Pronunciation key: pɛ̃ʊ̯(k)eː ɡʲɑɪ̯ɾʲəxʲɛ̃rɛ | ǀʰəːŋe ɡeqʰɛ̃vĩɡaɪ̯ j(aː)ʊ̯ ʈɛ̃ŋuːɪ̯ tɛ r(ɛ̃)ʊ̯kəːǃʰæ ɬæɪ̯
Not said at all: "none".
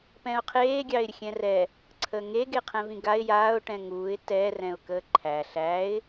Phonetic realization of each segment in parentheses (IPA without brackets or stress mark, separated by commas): qʰ, aː, ɛ̃